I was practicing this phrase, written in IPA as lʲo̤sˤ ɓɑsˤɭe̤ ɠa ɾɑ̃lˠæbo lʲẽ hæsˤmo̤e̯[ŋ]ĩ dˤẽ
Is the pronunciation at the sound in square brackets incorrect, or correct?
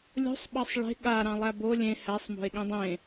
incorrect